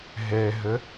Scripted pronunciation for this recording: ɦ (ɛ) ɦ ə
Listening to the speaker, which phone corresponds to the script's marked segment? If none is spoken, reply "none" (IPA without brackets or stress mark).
ɛ